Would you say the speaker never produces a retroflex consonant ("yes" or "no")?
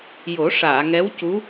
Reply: no